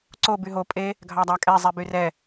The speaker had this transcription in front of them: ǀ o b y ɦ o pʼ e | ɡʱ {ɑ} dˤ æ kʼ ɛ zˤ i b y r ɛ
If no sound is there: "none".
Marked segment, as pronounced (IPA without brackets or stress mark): ɑ